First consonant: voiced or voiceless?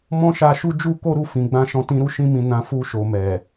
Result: voiced